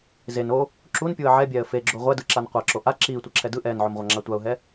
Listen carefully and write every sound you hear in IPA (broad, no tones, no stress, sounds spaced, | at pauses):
z e n o | ǁ u n pʲ u ə̯ ʕ ɛ bʲ ɛː ə̯ f e ɡ͡ǁ o ʁʷ ɛ d ɯ ǁ a n qʷ a ǁ o ʔ a ǁ iː tʷ ʌ ǁʰ ɛ d ɯ ʔ ɛː n ʕ o m ʁʷ a ŋ͡ǁ a tʷ a ʊ̯ ɦ ɛ